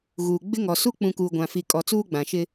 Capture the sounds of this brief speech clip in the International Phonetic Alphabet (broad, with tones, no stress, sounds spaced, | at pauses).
ɣ uː˨ ɡ͡b ɪ˦ ŋ ɔ˨ s u˦ k͡p ũ˨ k uː˨ ɡʷ ã˨ f i˨ kʼ ɔ˨ t͡s uː˦ ɡ͡b ã˨ ʃ ɪ˦